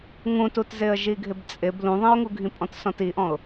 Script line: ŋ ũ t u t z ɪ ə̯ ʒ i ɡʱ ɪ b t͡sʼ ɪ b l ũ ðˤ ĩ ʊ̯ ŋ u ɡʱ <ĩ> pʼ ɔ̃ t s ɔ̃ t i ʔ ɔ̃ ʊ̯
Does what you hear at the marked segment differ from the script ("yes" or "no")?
no